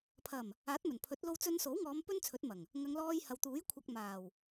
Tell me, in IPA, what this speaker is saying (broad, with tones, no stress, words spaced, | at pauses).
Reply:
pʰɐ˨˩m | aː˨˥t̚mɵ˨˩npʰɵ˨˥t̚ lo˧wt͡sɵ˧nso˨˥wŋɔː˨˧m pɵ˥nt͡sʰɵ˨˥t̚mɐ˨˩ŋ | ŋɐ˨˧ŋlɔː˧jhɐ˨wt̪uː˨˥j kʷʰɐ˧k̚maː˨˩w